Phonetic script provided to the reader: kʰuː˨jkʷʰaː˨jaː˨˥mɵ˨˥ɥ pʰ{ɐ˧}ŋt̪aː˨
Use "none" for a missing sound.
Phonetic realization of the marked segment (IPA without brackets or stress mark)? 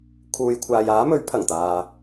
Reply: ɐ˨˩